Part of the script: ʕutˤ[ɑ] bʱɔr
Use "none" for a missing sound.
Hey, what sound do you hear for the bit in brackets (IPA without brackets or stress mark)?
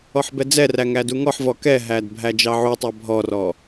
ɑ